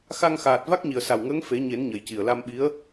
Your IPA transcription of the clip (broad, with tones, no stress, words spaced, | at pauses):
xa˧ŋxaː˨˩t̚ va˦˥k̚ɲi˨˩ə̯sa˨˩wŋəː˧˥ŋ fe˨˩˦ɲe˨˩˦n ɲə˨˩jci˨˩ə̯la˧mɓi˧˥ə̯